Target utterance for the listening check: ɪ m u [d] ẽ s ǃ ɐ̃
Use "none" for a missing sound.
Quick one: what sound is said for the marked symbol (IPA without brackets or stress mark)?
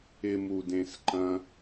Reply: d